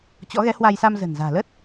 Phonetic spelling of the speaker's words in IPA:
t͡ɕ ɔ̰˧˥ ɣ ɛ˨˦ h w a˧ j s a˧ m z ə̤˨˩ n z a̤ː˨˩ l ə˦˥ t̚

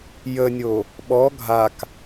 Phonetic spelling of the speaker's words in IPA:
j ə nʲ o | ɓ ɔ ɡʱ a k

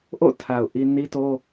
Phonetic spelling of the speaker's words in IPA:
ʔ o̰˦˨ tʰ a˨ ʊ̯ ʔ i˦ n i˦ t o˦

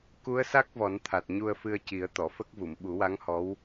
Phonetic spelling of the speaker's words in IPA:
k u˧˥ ə̯ s a˦˥ k̚ v ɔ˨˩˦ n t̪ʰ a˨˩ t̚ ɲ u˧ ə̯ f ɨ˧ ə̯ c i˨˩˦ ə̯ t̪ ɔ˨˩˨ f ə˦˥ k̚ v u˨˩˨ m ɓ u˨˩˦ w a˧˥ ŋ h ɔ˧˥ w

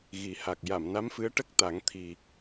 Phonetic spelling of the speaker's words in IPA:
ɣ i˨˩˦ h a˨˩ k̚ j a˨˩˨ m n a˧˥ m f ɨ˧˥ ə̯ ʈ ə˦˥ k̚ t̪ a˨˩˦ ŋ t̪ʰ i˨˩

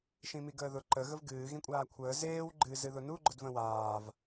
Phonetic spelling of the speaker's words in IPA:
ʃ ĩ m i ɡ əː ð ʊ ǃ ə ɣ ə v ɡ ɨː ɣ ĩ kʷʼ aː kʷʰ əː z eː w ɡ͡ǃ ɨ z ɨ ð ʊ n u ɡ͡ǃ ʊ d v ə̃ w aː v

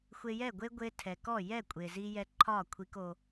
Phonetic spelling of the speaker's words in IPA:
xʷ e˧ j ɛ˦˨ ɡʷ e˦ ɡʷ e˧ tʰ ɛ˨ k ɔ˦˨ j ɛ˦˨ kʷʼ e˨ z i˧ j ɛ˧ ǃʰ ɒ˦˨ kʷʰ i˧ k o˧

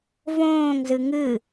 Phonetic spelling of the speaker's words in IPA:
v õː ŋ z ɨ ŋ ɨ

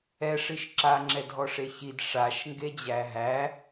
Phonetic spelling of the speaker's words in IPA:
ɛ ʂ i ʃ ǁ a ŋ͡ǁ ɛ dʱ ɔ ʂ e ç i d ʂ a ʃ ŋ ɡ e d͡ʑ æ ɦ æ

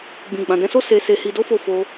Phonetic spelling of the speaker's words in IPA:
ɡ͡b ĩ˨ ɡ͡b ã˨ d ɛ̃˧ s o˦ s e˧ s e˧ h i˧ d o˦ f o˦˨ f o˧

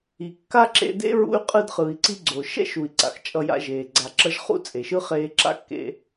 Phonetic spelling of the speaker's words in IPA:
i˩ kː a˥ ǁ ḛ˧ d ḛ˥ ɹ ṵ˧ y̯ qʼ ɯ˧ d χ ɯ˩ i̯ ǀ i˧ ɡ͡ǀ o˩ ʃ ɛ̰˥ ʃ u˩ i̯ ǀ a̰˩ x t͡ʃʼ ʌ˧ j a̰˧ ʒ eː˩ ɡ͡ǀ a˩ ǁ ʌ˧ ʒ χ ṵ˥ t͡sʼ e˩ ʃ ɯ˥ χ eː˧ ǁ a̰˥ kː ḛ˧

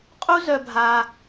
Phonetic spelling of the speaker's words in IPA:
qʼ u˦ z œ˧ bʱ a˧

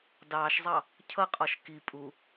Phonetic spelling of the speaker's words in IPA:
d ɑː ʃ zˤ ɑ | cʰ ʌ qʼ ɔ ʃ k i pʼ u

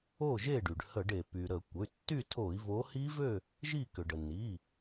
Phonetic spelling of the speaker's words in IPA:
o˥˨ ʒ e˥˨ ɖ y˩ ɖ h ə˧˩˧ ɖ e˩ p y˩ ɾ ə˧˩˧ kʷ ə˩˧˩ y̯ tː y˥˨ tʰ o˧˩˧ i̯ v o˨˦ h i˦˥ v ø˥˨ | ʒ i˥˨ k ʏ˩ ɖ ə˩ n i˩˧˩

